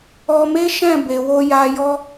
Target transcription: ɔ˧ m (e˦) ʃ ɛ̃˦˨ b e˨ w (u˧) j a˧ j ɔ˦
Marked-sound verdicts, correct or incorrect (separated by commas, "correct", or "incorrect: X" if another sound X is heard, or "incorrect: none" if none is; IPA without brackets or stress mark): correct, incorrect: o˧